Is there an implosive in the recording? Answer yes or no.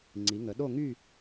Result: yes